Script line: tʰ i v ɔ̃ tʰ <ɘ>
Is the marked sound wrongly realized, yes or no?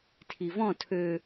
yes